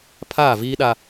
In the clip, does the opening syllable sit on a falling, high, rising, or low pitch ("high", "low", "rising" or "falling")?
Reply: falling